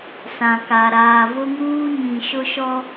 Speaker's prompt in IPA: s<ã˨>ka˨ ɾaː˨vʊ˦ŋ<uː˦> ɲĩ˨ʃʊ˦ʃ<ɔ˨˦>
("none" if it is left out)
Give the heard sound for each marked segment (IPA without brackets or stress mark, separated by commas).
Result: ã˨, uː˦, ɔ˦